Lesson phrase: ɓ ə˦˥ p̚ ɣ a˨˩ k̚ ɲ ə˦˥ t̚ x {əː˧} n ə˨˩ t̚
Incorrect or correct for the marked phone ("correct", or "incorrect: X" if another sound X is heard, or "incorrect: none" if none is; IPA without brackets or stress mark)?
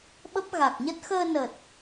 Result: correct